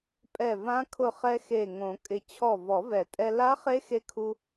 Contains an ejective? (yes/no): yes